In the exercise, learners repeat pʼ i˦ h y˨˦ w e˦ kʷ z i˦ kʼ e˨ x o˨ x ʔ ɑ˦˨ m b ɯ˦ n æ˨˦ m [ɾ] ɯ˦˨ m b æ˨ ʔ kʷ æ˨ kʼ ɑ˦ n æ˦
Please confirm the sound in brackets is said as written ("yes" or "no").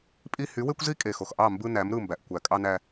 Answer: yes